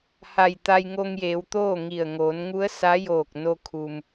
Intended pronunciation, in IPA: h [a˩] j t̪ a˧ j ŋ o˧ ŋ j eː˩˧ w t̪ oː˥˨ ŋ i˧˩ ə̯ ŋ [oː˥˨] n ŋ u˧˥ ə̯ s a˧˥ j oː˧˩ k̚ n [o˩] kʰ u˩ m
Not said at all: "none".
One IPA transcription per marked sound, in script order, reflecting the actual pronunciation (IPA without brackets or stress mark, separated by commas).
a˧˩, oː˩˧, o˧